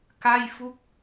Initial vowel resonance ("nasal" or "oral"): oral